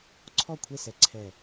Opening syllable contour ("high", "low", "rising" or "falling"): falling